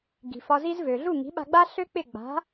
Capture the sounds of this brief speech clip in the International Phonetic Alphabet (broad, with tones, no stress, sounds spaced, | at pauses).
ɡ i̤˩ f ɒ˧ z i˥ z v ø˩ ɮ u˥˩ ŋ i̤˩˥ ɓ a̤˧ ɡ͡b a˥ ɬ ø˥ k͡p ɪ˥˩ ɡ͡b a̤˩˥